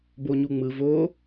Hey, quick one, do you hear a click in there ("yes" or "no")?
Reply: no